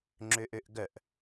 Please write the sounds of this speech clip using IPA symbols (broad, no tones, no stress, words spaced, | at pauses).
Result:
ŋ͡ǁøʔøʔɡœʔ